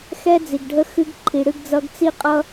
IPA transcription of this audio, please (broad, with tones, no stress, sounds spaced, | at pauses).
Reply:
x ɛ˦ d͡z i˨ ɡ ɖʱ ə˦ x ɨ˦ ɡ ǃʰ i˨ ɽ ɨ˦ ɡ d͡z ʌ˦ ɡ t͡s i˦ qʼ ʌ˦